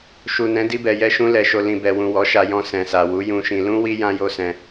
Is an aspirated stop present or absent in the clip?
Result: absent